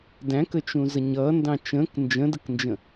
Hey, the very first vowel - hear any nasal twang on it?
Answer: yes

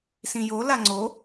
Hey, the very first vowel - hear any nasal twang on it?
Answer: yes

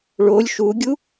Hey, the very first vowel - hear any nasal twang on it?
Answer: no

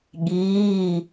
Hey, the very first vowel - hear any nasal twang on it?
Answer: no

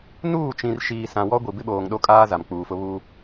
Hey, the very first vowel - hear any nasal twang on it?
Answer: no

